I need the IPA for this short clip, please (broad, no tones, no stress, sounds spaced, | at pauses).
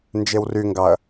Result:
n d͡ʒ e w r y ŋ ɡ ɑ ɐ̯